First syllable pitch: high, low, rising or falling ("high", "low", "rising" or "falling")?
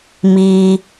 high